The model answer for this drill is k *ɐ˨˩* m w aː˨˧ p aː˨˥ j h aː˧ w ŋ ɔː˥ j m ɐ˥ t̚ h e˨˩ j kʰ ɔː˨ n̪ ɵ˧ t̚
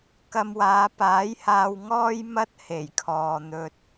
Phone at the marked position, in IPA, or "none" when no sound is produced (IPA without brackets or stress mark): ɐ˧